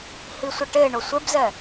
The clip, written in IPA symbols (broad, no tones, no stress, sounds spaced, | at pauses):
h i sʷ ɪ ʈ e ɳ ʊ sʷ e b z ɛ